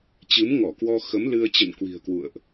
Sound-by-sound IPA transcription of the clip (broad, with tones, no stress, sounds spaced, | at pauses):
t͡ɕ ɨ˨˦ m ŋ ɔ˧˩ k w ɔ˧ x ə˨˦ m l ɨ˧ ə̯ t͡ɕ ə̰˧˨ n k w i̤˨˩ ə̯ k w ṵ˧˨ ə̯ ʔ